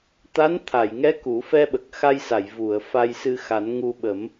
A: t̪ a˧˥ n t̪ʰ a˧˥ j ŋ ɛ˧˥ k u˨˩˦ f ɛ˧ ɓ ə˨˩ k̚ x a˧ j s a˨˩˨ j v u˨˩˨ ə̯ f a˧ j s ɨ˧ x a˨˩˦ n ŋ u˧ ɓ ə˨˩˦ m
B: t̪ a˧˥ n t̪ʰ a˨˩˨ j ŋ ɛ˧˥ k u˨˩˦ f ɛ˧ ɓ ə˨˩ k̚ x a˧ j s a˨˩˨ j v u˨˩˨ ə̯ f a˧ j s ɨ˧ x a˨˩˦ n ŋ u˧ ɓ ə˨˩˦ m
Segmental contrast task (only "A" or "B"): B